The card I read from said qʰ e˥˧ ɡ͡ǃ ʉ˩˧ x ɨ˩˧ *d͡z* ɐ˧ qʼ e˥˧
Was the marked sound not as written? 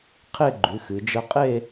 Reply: yes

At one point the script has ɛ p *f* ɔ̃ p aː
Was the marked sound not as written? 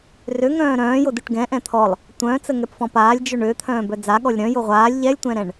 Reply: no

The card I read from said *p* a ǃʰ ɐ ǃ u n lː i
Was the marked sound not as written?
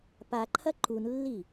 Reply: no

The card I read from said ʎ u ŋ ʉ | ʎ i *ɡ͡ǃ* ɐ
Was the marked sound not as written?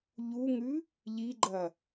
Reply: no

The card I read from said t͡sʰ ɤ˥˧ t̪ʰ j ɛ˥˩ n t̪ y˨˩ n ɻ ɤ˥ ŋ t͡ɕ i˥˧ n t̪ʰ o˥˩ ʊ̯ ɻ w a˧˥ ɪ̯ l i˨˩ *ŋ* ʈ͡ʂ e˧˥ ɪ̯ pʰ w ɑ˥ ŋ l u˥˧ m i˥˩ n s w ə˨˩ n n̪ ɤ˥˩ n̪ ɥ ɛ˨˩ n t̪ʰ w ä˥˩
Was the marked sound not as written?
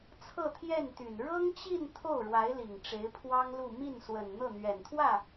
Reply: no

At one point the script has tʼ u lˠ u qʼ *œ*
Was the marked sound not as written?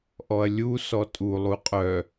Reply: no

